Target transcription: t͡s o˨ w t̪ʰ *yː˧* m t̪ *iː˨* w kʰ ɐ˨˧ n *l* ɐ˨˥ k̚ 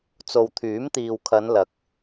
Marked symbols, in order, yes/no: no, yes, yes

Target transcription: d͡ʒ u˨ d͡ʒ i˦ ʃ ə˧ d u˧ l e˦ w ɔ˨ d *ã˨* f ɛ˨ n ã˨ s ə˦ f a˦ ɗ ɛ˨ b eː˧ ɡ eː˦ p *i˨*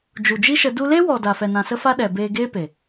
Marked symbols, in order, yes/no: no, no

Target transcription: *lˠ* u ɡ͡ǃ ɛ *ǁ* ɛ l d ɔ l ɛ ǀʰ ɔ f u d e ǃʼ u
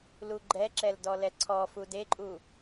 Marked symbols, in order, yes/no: no, yes

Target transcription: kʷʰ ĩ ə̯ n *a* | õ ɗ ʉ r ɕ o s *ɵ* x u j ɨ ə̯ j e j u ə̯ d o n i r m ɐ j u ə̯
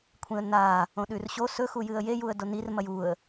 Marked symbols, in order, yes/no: yes, yes

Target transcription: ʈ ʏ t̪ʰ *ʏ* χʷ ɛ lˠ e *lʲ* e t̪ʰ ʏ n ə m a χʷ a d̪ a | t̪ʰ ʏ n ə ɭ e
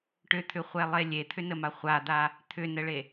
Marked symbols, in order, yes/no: yes, yes

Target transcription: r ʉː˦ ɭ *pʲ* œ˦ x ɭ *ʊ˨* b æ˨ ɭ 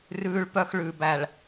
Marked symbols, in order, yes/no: no, no

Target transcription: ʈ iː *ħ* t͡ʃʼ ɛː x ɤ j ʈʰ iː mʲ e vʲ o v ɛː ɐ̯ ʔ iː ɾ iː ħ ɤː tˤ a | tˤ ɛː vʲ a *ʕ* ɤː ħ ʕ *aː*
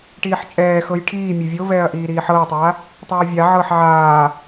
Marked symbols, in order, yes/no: yes, yes, yes

